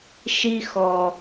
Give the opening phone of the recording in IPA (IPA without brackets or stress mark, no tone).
ʃ